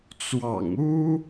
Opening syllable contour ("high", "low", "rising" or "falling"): low